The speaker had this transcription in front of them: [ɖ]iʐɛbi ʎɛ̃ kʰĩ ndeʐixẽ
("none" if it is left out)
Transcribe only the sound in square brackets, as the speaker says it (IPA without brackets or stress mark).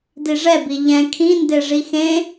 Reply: d